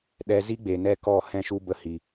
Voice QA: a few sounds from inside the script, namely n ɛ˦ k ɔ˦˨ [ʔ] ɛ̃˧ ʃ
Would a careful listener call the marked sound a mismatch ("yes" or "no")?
yes